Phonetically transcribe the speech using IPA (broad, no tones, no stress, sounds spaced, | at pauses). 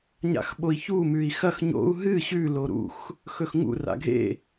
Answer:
ɲ a̰ x ɓ o i̯ ç u m ʉ i̯ x ɐ x ɲ o̰ u̯ ɦ ɨ ɕ ʉ l o ɾ ṵ x | x ɵ x ŋ ṵ r a̰ ɡʱ ḛ